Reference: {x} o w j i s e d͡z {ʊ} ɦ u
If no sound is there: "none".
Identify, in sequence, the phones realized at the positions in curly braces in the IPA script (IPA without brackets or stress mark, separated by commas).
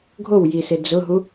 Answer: ɡʱ, ʊ